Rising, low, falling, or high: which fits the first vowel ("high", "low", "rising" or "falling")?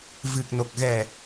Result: low